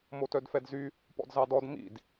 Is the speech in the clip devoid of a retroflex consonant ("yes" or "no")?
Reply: yes